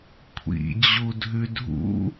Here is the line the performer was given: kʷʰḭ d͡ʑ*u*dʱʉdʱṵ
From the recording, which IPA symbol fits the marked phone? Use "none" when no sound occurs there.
u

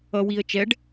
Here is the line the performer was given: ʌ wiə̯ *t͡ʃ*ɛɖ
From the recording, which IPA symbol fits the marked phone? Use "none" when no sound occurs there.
t͡ʃ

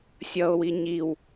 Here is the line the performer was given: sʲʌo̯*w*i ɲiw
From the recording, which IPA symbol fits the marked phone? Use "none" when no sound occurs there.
w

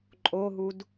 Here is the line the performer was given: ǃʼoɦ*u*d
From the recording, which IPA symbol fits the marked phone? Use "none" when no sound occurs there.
u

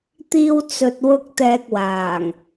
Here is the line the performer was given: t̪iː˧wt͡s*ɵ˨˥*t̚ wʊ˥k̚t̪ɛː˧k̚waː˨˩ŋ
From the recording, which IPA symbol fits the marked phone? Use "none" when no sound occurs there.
ɵ˨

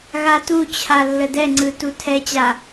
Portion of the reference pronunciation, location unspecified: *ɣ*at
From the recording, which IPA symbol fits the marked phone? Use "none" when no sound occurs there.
ɣ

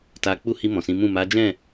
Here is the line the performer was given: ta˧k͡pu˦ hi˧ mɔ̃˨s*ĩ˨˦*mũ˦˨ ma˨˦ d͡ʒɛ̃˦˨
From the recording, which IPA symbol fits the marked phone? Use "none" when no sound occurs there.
ĩ˨˦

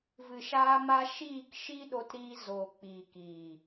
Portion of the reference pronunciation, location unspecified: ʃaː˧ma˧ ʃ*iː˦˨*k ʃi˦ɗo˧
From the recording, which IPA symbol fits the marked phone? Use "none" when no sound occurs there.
iː˦˨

